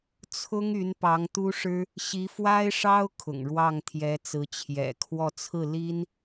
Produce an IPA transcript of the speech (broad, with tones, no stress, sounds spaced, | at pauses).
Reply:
t͡sʰ ʊ˥ ŋ y˧˥ n p ɑ˧˥ ŋ t̪ u˥ ʂ ɻ̩˥ | ɕ i˧˥ f w a˥ ɪ̯ ʂ ɑ˥ ʊ̯ kʰ ʊ̰˨˩ ŋ ɻ w ɑ˥˩ ŋ t̪ʰ j ɛ˧˥ t͡s ɹ̩˧˥ t͡ɕʰ j ɛ̰˨˩ kʰ w ɔ˥˧ t͡sʰ ɹ̩˥˩ l i˥ n